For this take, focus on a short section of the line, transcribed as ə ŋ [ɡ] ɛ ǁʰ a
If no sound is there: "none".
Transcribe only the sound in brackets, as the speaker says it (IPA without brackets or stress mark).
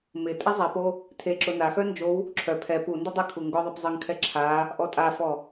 kʰ